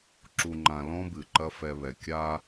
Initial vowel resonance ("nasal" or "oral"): oral